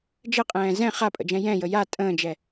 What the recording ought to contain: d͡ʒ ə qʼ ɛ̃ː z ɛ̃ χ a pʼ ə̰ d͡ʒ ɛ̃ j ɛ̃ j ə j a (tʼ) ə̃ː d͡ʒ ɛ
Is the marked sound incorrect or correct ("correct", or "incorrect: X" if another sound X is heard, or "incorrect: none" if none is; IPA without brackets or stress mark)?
correct